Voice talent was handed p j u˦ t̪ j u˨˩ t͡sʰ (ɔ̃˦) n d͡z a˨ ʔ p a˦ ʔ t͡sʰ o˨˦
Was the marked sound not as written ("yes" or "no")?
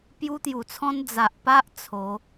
no